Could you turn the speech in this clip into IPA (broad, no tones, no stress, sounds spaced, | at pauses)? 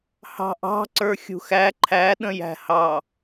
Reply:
h ɑ̤ ʔ ɑ̤ ǀ ə˞ xʲ ṳ x æ ǃʰ æ ɗ ə̃ j æ̤ h ɑ